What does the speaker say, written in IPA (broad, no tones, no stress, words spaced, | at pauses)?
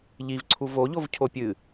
ʎivǀʰu voʎov cʰopʲɨ